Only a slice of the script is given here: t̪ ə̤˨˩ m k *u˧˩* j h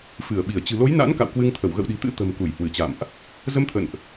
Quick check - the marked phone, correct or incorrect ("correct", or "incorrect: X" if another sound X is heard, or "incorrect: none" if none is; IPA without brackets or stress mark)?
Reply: correct